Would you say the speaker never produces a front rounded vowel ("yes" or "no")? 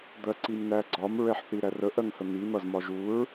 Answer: yes